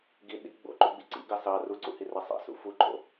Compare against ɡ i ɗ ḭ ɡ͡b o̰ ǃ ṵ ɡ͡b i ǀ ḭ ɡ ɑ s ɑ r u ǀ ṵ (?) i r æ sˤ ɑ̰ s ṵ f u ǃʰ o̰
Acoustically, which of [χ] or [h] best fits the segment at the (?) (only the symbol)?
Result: h